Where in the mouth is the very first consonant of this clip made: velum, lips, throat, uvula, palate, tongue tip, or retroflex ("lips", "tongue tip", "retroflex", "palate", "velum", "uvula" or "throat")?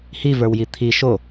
throat